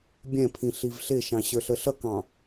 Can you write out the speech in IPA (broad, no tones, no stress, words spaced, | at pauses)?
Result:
bʲɛ̃pʰĩ ɬivɬɪʃɑ̃ ɕə˞ɬəɬʌkɑ̃